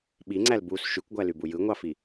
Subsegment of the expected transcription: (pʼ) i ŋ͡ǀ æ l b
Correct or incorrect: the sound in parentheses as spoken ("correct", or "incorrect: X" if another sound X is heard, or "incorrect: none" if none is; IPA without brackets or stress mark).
incorrect: ɓ